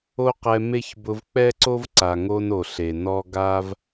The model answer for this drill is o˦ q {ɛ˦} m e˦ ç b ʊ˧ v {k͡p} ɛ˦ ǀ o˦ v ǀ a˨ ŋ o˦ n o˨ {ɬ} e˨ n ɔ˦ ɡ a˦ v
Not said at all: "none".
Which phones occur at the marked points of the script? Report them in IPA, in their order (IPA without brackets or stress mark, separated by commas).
ɛ˧, k͡p, ɬ